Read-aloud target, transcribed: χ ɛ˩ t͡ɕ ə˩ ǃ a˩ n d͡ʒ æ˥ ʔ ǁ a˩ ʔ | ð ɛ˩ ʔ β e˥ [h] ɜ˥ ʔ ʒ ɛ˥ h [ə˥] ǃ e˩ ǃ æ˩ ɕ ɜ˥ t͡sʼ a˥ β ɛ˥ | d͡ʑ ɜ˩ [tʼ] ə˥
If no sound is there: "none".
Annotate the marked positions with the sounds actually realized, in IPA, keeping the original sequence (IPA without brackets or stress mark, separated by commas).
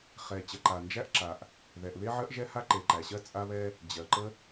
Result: ʕ, a˥, ǃ